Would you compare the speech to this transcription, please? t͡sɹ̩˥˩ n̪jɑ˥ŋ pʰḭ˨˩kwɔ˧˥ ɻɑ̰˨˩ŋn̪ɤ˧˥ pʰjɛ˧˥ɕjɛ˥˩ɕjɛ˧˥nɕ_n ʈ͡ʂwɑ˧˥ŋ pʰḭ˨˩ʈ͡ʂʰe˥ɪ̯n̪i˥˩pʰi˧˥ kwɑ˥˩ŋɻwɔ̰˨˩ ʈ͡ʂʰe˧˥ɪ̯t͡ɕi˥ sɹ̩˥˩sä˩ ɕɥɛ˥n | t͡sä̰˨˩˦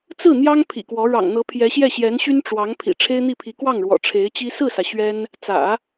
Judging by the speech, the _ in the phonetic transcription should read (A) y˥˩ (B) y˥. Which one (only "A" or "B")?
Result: B